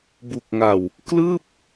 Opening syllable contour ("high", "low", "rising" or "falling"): low